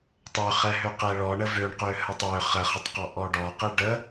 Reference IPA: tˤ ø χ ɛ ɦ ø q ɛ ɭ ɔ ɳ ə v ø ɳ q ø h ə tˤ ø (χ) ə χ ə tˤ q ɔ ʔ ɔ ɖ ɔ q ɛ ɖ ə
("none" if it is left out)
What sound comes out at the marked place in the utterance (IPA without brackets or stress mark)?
χ